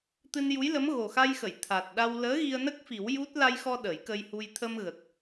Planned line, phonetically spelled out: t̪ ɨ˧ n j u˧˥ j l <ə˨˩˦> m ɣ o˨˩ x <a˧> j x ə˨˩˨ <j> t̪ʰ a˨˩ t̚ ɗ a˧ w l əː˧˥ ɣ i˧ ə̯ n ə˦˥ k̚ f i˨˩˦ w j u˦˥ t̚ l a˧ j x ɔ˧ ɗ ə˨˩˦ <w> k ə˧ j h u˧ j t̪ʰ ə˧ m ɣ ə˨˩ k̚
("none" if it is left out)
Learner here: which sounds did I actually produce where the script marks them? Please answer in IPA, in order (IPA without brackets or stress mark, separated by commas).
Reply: ə˧˥, a˧, j, j